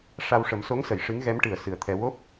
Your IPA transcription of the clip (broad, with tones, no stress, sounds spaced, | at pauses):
ʂ a˧ w ʂ ə˨˩˦ m s o˧˥ ŋ s ə˨˩˨ j ʂ ɨ˧˥ ŋ ɣ ɛ˧˥ m ʈ ɨ˨˩ ə̯ s ɨ˨˩ ə̯ t̪ʰ ɛ˧ w o˦˥ p̚